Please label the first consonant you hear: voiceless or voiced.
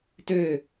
voiceless